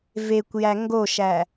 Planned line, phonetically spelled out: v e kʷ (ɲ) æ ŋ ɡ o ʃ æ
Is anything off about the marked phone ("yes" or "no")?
yes